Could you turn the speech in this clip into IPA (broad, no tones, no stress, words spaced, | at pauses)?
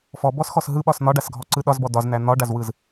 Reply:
fɔbɔs xɔsɦɯɓɒs n̪ɒɖasɡʱɔ ǀɯɗɒzbɔ dɒzn̪æ n̪ɒɖazwɯz